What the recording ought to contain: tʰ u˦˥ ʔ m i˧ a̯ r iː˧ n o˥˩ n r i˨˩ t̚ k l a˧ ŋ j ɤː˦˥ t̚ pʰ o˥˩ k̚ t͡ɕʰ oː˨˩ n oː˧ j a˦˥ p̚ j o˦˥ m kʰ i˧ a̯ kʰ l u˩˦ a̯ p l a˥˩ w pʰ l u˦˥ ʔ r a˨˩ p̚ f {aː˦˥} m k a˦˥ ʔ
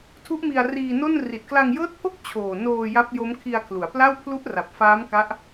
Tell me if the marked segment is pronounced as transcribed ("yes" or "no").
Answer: yes